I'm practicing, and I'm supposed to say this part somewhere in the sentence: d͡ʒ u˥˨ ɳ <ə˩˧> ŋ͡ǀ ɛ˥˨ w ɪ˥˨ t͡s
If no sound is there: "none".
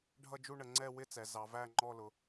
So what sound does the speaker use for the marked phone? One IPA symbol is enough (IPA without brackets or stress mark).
ə˩˧